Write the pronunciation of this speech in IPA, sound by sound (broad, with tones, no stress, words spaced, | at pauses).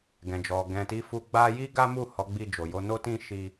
ɡɛ̃˨d͡ʒɔ˨ ɡɛ̃˨ti˨˦fu˧ ɡ͡ba˦ ji˦ɡa˦mu˦˨ hɔ˨˦ɡ͡bi˧d͡ʒo˨ jo˧no˦ tĩ˦ ʃi˦